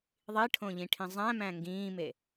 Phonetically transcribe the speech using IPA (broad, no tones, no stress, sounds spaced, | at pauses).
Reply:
ðˤ i ʈʰ õ ʎ ĩ ʈʰ ĩ zˤ æ̃ m æ̃ ŋ ɡ ĩː m e